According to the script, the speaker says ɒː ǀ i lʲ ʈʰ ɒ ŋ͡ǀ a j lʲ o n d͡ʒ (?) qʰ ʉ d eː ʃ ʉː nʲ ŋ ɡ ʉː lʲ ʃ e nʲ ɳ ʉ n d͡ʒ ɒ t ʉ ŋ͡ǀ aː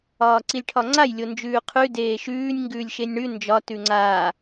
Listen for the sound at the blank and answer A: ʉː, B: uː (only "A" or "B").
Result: A